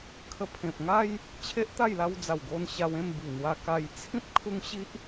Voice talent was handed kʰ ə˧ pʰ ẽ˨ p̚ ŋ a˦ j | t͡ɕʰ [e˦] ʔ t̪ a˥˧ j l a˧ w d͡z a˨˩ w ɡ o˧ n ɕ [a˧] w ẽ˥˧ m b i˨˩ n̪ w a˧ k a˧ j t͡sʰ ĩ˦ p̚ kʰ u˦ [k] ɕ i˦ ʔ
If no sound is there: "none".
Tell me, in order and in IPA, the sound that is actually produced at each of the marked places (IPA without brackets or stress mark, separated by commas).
e˦, a˧, ŋ